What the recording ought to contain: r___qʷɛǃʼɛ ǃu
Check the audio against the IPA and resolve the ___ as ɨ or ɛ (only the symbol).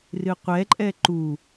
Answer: ɨ